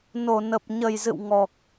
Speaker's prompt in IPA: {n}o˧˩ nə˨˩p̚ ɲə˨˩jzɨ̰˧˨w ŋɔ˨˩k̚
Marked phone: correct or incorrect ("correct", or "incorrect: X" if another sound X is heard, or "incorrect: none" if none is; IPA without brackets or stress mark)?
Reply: correct